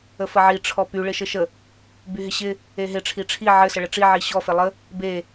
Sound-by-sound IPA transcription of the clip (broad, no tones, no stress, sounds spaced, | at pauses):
ə f ə ʕ i ʈ͡ʂʰ ɔ p y ɭ ɪ ʃ ɘ ʃ ə | b y ɦ ɪ ɕ ɪ | e ɦ ɪ ʈ͡ʂʰ i ʈ͡ʂʰ i ʕ ɘ s ə ɭ ə ʈ͡ʂ i ʕ i ɕ ɔ f e lˠ ə | b e